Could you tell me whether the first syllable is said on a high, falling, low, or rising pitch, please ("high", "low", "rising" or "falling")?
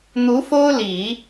rising